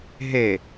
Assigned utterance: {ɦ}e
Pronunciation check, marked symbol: correct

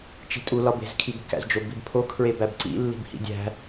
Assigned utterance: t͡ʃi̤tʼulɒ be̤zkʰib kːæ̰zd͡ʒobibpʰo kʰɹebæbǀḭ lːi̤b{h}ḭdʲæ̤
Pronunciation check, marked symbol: correct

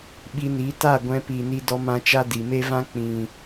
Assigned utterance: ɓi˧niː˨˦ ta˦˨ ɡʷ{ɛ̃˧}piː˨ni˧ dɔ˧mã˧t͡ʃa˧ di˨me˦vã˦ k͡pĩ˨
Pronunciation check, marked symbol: correct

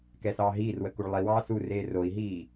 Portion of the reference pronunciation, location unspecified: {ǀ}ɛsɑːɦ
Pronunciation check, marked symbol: incorrect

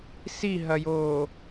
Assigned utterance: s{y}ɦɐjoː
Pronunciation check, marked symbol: incorrect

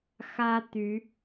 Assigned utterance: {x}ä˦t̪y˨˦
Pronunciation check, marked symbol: correct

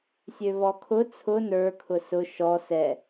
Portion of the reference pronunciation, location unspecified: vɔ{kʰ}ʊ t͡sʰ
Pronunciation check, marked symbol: correct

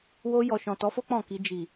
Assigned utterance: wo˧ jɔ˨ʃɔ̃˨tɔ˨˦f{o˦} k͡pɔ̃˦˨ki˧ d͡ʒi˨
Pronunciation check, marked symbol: correct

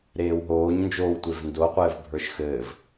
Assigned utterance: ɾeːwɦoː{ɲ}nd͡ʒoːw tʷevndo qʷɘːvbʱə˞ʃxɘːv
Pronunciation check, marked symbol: correct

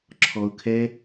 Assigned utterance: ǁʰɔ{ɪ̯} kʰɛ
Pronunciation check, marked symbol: incorrect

